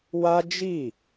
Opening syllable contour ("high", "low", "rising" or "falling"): high